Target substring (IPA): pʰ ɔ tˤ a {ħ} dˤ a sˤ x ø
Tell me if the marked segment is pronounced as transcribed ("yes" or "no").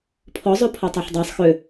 yes